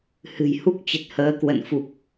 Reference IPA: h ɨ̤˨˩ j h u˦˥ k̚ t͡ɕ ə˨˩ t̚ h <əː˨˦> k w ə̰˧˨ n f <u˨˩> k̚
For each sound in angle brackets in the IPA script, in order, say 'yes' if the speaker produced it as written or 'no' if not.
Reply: yes, yes

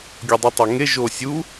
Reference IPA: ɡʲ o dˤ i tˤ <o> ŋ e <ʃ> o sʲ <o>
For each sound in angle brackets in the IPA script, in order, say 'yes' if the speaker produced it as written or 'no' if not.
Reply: yes, no, no

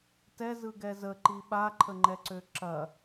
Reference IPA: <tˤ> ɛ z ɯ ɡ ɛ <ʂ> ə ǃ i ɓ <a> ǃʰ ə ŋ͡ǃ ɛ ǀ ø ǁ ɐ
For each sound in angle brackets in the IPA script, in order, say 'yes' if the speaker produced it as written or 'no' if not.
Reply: no, no, yes

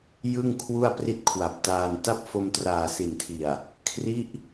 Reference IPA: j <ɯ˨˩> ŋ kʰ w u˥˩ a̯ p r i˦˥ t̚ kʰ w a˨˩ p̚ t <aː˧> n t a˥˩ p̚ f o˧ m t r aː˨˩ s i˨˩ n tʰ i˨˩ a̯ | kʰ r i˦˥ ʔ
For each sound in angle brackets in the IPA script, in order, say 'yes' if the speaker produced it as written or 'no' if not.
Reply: no, yes

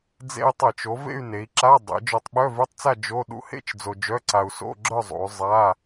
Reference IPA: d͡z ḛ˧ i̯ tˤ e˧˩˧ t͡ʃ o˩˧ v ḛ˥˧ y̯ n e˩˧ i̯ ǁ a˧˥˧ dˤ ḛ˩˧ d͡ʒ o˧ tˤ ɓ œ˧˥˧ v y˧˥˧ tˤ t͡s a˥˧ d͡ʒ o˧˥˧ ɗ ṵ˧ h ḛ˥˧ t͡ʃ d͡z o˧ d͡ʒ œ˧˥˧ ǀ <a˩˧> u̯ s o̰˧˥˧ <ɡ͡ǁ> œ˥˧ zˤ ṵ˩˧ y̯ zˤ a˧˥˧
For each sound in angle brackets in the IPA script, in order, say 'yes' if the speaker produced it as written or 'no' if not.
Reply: no, yes

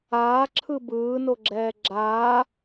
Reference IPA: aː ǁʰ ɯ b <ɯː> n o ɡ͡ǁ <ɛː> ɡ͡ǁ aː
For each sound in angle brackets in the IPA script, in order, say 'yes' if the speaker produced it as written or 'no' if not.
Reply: yes, yes

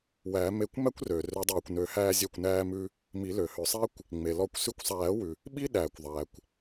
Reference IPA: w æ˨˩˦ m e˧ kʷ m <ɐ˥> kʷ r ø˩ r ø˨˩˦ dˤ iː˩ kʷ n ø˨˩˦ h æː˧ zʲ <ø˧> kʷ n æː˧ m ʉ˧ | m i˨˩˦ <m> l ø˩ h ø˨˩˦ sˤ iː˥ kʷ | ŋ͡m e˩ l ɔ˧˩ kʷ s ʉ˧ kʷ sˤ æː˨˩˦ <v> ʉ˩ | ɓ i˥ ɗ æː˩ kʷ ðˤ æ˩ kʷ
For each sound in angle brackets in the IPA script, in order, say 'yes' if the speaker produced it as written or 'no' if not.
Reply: no, no, no, no

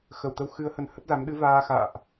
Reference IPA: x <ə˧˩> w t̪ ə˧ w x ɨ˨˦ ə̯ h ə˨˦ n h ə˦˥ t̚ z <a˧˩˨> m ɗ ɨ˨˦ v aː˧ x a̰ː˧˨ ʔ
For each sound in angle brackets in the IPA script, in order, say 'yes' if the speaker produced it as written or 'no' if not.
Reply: yes, no

